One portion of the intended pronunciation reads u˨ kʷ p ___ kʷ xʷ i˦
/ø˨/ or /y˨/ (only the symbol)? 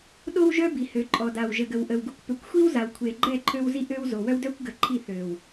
ø˨